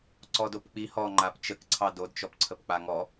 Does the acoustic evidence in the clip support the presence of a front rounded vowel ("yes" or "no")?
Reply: no